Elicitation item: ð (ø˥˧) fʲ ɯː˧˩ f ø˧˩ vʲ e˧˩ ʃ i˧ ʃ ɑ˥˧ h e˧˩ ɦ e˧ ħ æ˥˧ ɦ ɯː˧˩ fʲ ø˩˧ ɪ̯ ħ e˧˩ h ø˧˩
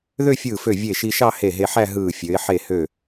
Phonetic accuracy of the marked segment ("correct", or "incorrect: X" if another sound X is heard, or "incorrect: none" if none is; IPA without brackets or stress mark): correct